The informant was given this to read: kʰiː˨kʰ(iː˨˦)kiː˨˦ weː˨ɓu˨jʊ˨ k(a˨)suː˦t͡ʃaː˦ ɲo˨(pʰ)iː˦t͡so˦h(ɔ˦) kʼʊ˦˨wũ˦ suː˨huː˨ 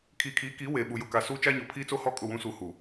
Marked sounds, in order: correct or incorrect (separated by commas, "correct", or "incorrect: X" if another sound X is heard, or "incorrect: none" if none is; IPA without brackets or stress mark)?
correct, correct, correct, correct